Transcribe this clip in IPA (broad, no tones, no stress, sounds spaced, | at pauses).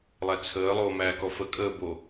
lˠ æ t͡sʰ əː lˠ oː m æː k ɔ f ə kʼ əː b o